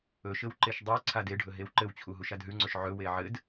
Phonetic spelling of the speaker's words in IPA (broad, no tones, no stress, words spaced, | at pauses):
ɵʃɘw ǃeʃdˤe ǀʰadeɖʱɵ ɦewǃɘwt͡ɕʰu ɦuʃadɦʉŋ͡ǀɵʃ ʕɵwe ʕɘd